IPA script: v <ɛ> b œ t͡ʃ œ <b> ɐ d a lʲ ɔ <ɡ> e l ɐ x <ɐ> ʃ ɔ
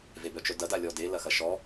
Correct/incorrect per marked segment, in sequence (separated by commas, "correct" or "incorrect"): incorrect, incorrect, incorrect, correct